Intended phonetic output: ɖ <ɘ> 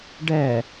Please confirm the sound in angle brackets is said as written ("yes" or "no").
no